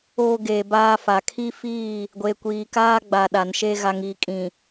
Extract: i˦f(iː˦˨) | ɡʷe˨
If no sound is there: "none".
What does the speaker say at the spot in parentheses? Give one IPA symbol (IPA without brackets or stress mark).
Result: iː˦˨